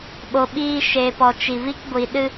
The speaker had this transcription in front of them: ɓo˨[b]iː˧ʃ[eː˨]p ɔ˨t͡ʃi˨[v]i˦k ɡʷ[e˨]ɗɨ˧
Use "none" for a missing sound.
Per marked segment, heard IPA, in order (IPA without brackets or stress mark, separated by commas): ɓ, eː˨, v, i˨